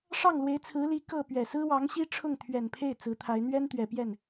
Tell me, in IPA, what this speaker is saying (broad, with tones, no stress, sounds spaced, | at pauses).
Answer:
ʂ ɑ˥˩ ŋ l w e˧˥ ɪ̯ t͡sʰ ɹ̩˧˥ l i˧˥ k ɤ˥˩ p ɥ ɛ˨˩ s ɹ̩˥ w ɑ˧˥ ŋ ɕ i˥ ʈ͡ʂʰ ʊ˥˩ ŋ t̪ʰ ɥ ɛ˨˩ n pʰ e˥˩ ɪ̯ t͡s ɹ̩˧˥ t̪ʰ a˧˥ ɪ̯ n̪ ɥ ɛ˥ n t̪ ɥ ɛ˨˩ p j ɛ˥˩ n